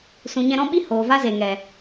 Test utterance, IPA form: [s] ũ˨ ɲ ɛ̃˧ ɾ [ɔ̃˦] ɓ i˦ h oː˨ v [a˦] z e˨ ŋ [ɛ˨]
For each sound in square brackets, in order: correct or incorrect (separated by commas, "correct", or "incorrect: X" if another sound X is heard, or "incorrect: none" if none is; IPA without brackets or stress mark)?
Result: correct, correct, correct, correct